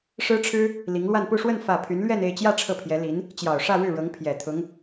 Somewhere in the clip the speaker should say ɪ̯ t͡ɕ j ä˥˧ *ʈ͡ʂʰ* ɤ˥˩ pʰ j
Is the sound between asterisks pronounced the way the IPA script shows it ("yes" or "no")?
yes